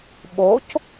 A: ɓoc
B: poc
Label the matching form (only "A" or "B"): A